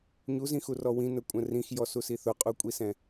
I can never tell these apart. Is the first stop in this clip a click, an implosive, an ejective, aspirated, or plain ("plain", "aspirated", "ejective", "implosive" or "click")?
ejective